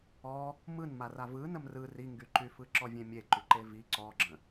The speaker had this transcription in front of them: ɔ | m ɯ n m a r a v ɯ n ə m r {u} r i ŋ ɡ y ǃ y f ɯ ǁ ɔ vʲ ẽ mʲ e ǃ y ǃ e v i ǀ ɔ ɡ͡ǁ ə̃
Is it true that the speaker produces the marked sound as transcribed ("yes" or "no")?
no